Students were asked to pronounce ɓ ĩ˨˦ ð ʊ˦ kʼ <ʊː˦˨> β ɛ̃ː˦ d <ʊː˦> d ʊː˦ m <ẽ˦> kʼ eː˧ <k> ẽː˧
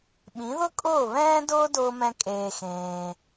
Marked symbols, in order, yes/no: yes, yes, no, no

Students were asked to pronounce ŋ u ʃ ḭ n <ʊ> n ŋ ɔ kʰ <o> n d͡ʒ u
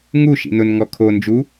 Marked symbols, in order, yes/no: yes, yes

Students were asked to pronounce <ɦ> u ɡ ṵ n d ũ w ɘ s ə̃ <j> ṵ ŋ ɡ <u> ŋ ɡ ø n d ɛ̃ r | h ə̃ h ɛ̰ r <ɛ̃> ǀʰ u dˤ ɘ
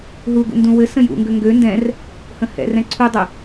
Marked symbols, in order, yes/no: yes, yes, no, yes

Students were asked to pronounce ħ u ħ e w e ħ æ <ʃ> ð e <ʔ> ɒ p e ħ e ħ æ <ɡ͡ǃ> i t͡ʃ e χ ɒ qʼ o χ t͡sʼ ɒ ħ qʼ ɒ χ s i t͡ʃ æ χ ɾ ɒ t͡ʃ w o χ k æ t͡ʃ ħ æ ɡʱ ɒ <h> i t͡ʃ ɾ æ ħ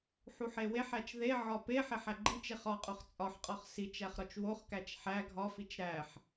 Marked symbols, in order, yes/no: no, no, yes, no

